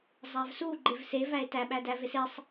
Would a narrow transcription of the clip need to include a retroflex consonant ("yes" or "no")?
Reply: no